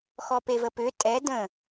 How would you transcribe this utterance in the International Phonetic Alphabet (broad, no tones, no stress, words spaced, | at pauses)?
xɔpevəpʏ tʼɛ də̃